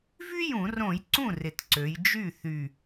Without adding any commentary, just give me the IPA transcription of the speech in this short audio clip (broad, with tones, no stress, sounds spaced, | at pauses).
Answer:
v y˥ j ũ˧˩˧ r õ˧˩˧ j ǀ ũ˥˩ r ɪ˨˩ t ǀ ø˩˧ j d͡ʒ y˥˩ θ y˨˩